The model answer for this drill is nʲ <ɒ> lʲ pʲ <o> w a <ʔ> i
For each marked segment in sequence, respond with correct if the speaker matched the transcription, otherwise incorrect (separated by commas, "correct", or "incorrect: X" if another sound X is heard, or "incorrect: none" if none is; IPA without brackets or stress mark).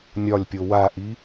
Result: correct, correct, correct